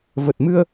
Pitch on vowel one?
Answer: low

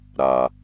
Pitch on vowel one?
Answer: low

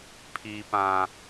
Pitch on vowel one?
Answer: high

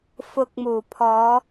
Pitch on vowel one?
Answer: rising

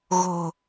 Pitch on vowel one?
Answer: low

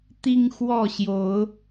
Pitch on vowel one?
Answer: high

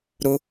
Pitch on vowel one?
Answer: high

